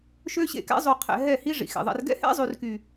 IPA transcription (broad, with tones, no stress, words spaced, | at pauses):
ʃø˦ɕḛ˦˨kɛ̰˦ zˤy˨qʰɛ̰˨ ɦɛ˦˨hi˦ ʐḭ˨xḛ˨ðˤɛ̰˧r ɡɛ̰˦hɛ̰˦zˤy˨rky˨